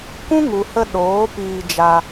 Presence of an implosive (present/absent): present